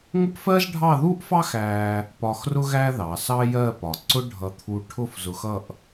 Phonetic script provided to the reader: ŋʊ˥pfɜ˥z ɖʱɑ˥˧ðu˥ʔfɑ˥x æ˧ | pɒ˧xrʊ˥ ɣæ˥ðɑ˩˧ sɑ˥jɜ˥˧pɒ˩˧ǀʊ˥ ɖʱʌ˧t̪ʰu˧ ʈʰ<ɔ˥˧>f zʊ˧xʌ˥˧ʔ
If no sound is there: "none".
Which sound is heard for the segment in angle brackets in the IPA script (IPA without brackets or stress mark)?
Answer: ʊ˥˧